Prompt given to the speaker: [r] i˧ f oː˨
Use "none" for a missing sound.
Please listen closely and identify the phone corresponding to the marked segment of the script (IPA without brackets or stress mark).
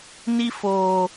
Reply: n